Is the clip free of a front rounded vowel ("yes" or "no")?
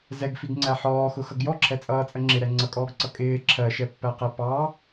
yes